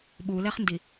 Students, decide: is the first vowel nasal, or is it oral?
oral